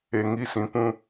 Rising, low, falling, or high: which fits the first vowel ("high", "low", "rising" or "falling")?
low